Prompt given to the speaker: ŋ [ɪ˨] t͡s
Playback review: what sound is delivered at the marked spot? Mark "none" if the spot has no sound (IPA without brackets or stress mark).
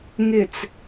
ɪ˨